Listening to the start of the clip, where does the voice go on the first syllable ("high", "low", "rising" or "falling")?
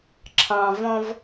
low